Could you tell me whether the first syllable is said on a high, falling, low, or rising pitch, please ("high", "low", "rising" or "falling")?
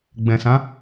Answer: low